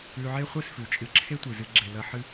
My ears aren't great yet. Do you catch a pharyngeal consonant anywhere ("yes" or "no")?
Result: yes